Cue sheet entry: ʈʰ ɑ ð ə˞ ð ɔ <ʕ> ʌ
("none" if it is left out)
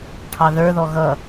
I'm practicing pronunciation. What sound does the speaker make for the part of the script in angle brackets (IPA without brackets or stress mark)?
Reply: ɣ